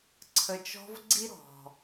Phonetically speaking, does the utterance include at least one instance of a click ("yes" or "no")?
yes